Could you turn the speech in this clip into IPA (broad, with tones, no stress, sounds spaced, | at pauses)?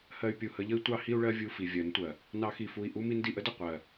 h ɜ˧ y̯ pʲ u˨ h ə˧ ʎ ə˦ i̯ tʷ ɑ˦ h i˦ u̯ ɭ ɜ˦ vʲ u˦˨ f i˨ vʲ ɜ˨˦ n tʷ ɜ˨ | n ɑ˧ x i˨ f u˨ i̯ ʔ u˦ m i˧ n d i˨ ʔ ə˦ d ə˦˨ qʷ ɜ˨